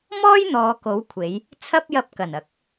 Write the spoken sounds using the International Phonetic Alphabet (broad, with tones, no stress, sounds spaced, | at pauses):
m ɔː˥ j n̪ ɔː˨ k o˨˧ w kʷʰ e˨˧ j | t͡sʰ ɐ˥ p̚ j ɐ˧ p̚ k ɐ˨˩ n ɐ˨˥ k̚